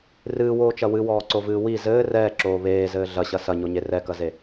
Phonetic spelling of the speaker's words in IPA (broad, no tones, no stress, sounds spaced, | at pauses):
r ɨː w oː t͡ʃ ɐ w ɨ w ɔː ǀ o v ɨː w i z ɘː r ɛː ǁ oː β eː z ɘː ɮ ɐ ɕ ɐ s ɐ ɲ o ɲ e r ɛ k ɐ z e